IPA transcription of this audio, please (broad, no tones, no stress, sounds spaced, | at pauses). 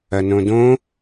ɐ n õ d õ